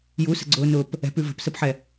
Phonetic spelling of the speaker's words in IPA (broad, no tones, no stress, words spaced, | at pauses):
jusə̤ɡ͡ǀʊːnʊːp | ɛ̤pʉ və̤psəpħɛ